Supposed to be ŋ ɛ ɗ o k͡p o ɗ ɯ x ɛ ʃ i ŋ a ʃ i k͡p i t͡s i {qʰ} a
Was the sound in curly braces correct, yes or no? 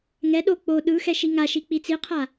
yes